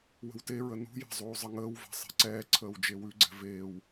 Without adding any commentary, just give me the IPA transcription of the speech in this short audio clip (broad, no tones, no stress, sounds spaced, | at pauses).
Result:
w ə̤ w t e ɹ ə n ṳ j ɛ̤ zˤ uː zˤ ə ŋ əː w v ɛ̤ sˤ e̤ ǀ ɛː ǀʰ əː w d͡ʒ e w ʉ ɡ͡ǀ ɛ̤ v eː w